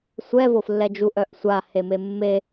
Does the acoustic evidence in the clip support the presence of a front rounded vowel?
yes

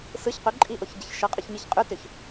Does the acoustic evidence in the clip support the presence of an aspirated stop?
no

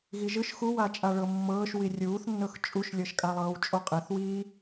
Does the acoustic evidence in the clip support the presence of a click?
no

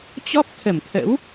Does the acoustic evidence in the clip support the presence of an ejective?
no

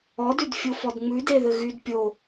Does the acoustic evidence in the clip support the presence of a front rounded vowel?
yes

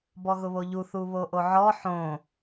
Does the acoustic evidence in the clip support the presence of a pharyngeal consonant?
yes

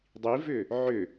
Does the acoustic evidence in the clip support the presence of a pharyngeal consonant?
yes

